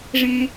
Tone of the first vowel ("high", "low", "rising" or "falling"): high